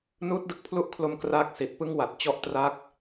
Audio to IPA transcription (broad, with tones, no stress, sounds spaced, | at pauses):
n uː˦˥ t̚ d ɯ˨˩ k̚ pʰ l u˦˥ ʔ kʰ l o˧ m k r aː˥˩ k̚ s i˨˩ t̚ p ɯ˥˩ ŋ w a˨˩ t̚ t͡ɕ ɔ˥˩ ʔ t r a˦˥ k̚